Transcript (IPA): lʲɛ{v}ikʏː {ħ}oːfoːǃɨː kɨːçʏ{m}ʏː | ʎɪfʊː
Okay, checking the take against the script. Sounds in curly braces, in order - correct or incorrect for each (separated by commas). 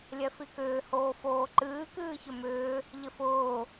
incorrect, incorrect, correct